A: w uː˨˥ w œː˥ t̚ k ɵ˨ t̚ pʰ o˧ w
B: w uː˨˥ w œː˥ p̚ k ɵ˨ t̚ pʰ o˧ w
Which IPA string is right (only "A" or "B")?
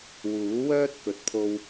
A